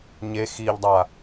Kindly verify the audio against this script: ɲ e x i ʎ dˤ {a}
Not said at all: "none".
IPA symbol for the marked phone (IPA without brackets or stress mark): a